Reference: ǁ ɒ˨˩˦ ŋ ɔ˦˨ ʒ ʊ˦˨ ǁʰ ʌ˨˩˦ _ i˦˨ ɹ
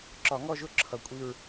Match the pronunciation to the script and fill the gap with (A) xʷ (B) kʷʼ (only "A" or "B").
B